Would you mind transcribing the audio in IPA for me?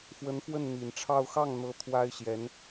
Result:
f w ə˧˥ n f w ə˥˩ n n̪ i˨˩ n ʈ͡ʂʰ ɑ˥˧ ʊ̯ x ɑ˥˩ ŋ n̪ ɤ˧˥ t̪ʰ w a˥ ɪ̯ ɕ j ɛ˧˥ n

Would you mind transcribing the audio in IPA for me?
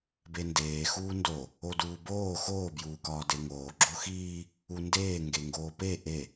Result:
b e n d eː x uː n d o | o d uː b oː x oː b j uː k ɒː d e ŋ oː ɡ͡ǁ o x iː | u n d eː ŋ ɡ e ŋ ɡ oː p e ʔ e

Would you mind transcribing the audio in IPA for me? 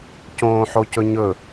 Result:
c õː ħ o c ɵ ɲ ɵ

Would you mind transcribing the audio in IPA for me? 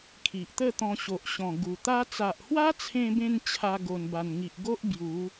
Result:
kʰ i˨ ʔ t̪ ə˥˧ t̪ ɔ̃˧ ɕ o˨ ʔ ɕ ɔ̃˨˩ ɡ u˨˩ t̪ a˦ t͡s a˨ ʔ h w a˦ t͡sʰ ẽ˧ b ẽ˧ n t͡ɕʰ a˧ ɡ o˨˩ n b a˨˩ n ŋ i˨ ʔ ɡ o˦ ʔ b j u˨˦

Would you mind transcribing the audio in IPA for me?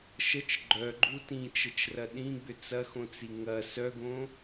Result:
ʃ ə t͡ʃ ɡ͡ǃ œ ɡ͡ǃ u t ĩ t͡ʃ ə t͡ʃ r ɐ ɗ ĩ ɡ͡b ʏ t͡s ɐ x õ t͡s i ŋ ɐ s œ ɡ õ

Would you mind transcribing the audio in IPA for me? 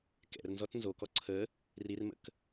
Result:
k ɛ̰ r n z ɔ t n z o k ɔ ǀʰ ə | r i r m ə̰ k

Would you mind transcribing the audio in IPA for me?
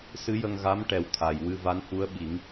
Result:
s ɨ˧˥ j ə˧ ŋ ɣ a˧˥ m ʈ ɛ˨˩ w t̪ʰ a˨˩ j w ɨ˧ v a˧˥ n h u˧˥ ə̯ ɓ i˨˩˦ ŋ

